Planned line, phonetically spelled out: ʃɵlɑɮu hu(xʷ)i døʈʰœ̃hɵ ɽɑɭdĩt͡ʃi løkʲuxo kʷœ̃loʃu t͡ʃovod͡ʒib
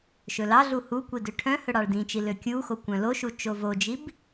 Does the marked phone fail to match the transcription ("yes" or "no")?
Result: yes